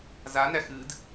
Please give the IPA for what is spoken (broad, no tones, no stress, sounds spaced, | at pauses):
z a n æ x ɨ d